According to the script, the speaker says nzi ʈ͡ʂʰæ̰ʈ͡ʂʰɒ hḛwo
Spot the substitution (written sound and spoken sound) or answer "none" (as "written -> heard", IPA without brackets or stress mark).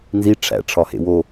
none